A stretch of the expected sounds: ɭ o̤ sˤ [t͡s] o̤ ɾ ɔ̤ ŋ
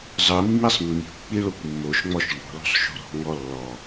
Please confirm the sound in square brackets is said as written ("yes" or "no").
no